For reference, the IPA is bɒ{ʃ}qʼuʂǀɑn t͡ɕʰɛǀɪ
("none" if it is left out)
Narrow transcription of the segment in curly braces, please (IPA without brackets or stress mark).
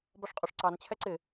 ʂ